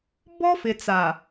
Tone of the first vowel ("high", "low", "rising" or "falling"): high